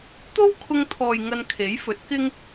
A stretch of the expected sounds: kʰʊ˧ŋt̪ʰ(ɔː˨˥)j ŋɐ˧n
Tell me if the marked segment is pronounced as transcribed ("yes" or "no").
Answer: no